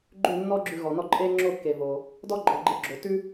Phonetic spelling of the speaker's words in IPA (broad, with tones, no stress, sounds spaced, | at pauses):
ɡ͡ǃ ʉ˥˩ nː ɔ˥ ɡ͡ǁ ʉ˧ ɣ ɔ˩ n ɔ˥˩ ǃʼ e˥ ŋ͡ǁ o˥˩ kː e˩ v o˩ | d ɔ˥ ɡ͡ǃ ɔ˩ ɡ͡ǃ e˧ ɡ͡ǁ o˩ t ʉ˥